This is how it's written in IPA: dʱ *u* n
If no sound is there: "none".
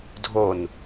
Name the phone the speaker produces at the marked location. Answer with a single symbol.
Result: o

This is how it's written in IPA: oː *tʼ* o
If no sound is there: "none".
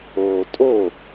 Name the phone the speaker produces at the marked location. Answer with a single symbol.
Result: tʼ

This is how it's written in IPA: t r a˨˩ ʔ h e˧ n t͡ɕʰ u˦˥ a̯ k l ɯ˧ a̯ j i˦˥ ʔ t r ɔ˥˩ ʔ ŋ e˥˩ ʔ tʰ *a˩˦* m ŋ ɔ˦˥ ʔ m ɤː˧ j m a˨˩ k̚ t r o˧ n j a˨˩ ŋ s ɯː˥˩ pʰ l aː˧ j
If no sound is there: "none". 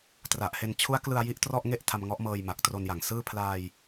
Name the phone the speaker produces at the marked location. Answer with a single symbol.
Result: a˧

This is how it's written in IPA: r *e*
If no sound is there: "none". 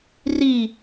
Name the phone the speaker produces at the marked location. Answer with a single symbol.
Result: i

